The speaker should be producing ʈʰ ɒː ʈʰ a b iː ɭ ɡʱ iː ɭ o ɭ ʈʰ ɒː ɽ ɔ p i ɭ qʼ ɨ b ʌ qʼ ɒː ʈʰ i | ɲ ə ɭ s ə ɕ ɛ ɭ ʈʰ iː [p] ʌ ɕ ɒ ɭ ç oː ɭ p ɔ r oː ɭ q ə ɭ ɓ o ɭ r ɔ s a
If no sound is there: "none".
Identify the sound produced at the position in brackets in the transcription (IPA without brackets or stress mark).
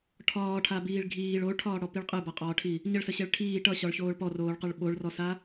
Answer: ʈ